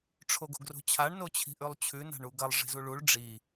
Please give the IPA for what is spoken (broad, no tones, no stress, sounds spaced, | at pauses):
ʈ͡ʂʰ o ɡ o̤ ɡ r o̤ t͡ɕʰ a ɳ n o t͡ɕʰ i̤ ʔ ʉ lˠ t͡ɕʰ ʉ n a̤ ɳ u ɡ ɐ lˠ ʐ i̤ z u ɭ u ɭ ɖ͡ʐ i